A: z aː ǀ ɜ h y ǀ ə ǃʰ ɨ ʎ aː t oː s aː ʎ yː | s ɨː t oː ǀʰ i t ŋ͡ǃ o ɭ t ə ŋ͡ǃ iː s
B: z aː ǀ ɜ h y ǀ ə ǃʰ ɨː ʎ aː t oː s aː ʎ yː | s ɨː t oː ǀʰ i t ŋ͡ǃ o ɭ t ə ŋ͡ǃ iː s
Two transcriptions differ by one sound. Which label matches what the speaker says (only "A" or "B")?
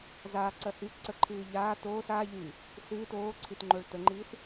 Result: B